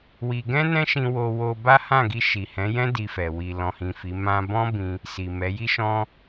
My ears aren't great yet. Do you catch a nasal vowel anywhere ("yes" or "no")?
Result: yes